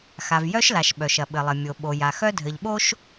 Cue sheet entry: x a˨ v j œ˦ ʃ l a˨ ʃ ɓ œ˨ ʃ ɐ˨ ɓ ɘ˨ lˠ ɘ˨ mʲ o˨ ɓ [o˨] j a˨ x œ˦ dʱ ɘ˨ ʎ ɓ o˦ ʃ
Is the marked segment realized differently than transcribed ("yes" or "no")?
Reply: no